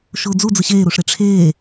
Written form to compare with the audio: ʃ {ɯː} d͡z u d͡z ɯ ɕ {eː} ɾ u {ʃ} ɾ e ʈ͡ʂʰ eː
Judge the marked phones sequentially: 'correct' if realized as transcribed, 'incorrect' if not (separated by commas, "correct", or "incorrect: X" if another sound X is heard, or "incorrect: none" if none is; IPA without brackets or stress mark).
incorrect: ʊː, correct, incorrect: ʂ